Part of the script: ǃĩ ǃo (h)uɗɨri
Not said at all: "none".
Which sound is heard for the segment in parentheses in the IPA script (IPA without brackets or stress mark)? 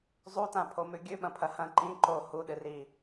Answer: h